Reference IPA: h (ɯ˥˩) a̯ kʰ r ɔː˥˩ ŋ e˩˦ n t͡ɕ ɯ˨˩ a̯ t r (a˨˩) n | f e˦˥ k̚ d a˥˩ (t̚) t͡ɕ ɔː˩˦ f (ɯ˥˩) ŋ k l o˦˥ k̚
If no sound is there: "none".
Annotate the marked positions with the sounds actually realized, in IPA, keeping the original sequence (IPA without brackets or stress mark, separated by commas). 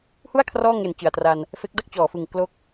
u˥˩, a˧, k̚, ɯ˨˩